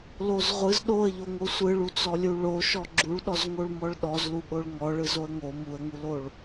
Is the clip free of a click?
no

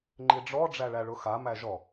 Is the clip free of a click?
no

